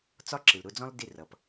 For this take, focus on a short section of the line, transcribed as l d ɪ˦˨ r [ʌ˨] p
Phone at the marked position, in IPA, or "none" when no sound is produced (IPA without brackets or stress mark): ʌ˨